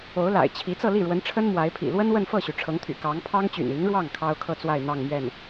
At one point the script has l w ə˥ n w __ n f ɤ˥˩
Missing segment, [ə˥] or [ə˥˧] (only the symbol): ə˥˧